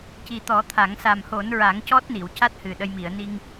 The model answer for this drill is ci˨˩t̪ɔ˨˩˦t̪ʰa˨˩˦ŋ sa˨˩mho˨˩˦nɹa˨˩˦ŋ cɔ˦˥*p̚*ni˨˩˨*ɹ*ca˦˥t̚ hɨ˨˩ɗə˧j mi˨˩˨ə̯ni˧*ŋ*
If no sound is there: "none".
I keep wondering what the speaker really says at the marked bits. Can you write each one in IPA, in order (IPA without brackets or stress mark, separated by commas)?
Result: t̚, w, ŋ